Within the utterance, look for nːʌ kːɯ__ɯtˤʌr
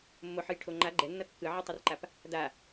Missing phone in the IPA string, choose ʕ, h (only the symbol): ʕ